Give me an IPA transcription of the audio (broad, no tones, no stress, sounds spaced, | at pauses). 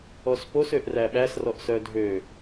ɔ s p o s ø ʔ r æ ɓ æ s r ɔ ʔ s œ dʱ ø